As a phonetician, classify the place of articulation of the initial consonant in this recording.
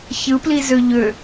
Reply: palatal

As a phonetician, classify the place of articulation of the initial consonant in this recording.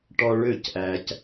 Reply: retroflex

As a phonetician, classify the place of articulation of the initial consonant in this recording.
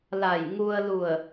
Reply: alveolar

